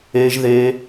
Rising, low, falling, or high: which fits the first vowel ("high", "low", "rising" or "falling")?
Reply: high